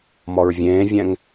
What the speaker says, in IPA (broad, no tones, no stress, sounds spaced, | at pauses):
m ɔ ɹ vʲ ẽː vʲ ɛ̃ ŋ